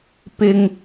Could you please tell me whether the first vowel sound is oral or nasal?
oral